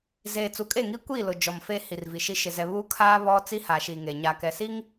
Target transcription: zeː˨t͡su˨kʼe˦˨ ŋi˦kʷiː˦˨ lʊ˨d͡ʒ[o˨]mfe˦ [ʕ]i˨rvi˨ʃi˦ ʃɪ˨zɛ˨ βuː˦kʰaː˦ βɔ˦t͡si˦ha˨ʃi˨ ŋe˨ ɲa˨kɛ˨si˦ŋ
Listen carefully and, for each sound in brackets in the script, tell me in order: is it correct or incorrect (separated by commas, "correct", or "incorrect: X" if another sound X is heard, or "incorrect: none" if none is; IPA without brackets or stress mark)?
incorrect: ɔ˨, incorrect: h